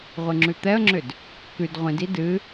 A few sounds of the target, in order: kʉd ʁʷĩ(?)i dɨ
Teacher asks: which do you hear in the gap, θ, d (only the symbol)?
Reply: d